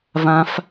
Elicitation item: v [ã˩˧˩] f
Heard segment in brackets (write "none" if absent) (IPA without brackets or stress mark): ã˦˥